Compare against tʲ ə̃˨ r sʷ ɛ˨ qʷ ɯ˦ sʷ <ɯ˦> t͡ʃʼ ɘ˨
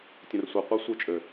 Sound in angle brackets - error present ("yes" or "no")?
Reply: yes